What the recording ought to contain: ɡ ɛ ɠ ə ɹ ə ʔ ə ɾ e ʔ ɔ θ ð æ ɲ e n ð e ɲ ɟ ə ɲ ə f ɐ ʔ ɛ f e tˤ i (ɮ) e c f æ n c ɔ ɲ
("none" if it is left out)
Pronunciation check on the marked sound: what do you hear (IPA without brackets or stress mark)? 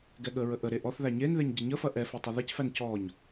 ð